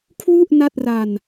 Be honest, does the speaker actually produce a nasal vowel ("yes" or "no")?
no